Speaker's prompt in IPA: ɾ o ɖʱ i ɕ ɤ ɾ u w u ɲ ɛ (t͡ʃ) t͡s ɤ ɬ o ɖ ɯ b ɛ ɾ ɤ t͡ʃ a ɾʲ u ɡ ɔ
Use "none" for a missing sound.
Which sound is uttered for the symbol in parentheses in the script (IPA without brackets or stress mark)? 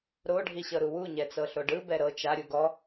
none